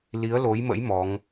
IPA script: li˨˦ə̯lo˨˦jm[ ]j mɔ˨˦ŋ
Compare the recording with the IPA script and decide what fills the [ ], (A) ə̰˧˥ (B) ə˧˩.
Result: A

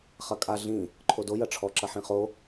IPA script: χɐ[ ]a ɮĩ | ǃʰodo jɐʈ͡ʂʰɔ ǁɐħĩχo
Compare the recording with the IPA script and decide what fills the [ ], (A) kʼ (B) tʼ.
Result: A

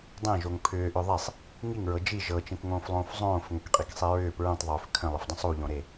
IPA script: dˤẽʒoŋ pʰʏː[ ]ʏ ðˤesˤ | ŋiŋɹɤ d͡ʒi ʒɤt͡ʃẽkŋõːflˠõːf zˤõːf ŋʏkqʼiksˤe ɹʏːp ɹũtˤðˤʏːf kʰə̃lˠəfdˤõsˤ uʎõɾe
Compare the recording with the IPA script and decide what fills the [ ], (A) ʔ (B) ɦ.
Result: A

